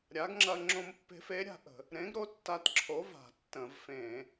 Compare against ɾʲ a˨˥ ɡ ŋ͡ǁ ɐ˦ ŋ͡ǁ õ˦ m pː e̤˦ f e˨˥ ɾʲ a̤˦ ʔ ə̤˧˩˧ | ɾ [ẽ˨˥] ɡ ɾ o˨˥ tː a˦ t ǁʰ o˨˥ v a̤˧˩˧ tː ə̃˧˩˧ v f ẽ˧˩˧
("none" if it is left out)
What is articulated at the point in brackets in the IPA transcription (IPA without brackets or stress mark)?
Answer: ẽ˨˥